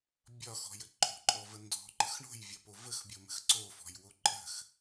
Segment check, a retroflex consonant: present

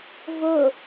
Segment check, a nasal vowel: absent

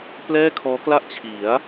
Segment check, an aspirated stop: present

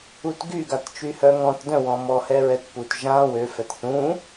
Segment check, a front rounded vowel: present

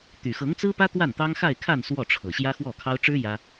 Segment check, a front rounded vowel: present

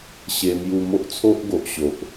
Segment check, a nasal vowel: absent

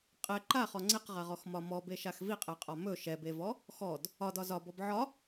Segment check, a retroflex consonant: absent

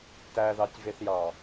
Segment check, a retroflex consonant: absent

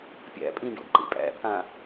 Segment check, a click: present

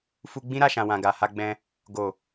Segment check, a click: absent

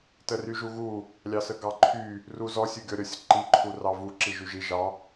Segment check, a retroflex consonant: absent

